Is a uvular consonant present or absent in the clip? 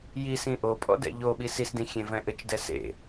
absent